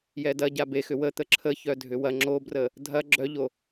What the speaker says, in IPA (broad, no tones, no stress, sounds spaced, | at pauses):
j ɛ d ɐ ɟ a b e x ʏ w ə t̪ ə ǁʰ ə ç œ dʱ ʏ w ɐ ŋ͡ǁ o b r ə | dʱ ɐ ɡ͡ǁ œ ʎ o